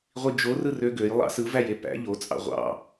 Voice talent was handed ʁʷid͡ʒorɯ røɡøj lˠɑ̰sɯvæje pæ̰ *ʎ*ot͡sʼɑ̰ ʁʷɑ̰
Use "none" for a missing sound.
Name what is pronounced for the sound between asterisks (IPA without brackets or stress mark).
ʎ